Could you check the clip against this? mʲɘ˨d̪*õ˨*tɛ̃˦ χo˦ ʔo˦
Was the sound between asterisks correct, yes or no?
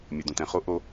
yes